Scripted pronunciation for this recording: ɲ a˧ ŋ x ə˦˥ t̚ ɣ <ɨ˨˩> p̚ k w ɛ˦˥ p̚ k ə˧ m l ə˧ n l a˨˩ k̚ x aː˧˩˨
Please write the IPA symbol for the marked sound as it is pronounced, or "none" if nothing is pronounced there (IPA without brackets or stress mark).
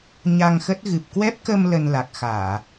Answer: ɨ˨˩